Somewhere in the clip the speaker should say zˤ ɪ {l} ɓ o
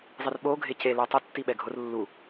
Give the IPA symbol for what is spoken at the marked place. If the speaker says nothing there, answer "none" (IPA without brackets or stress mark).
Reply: r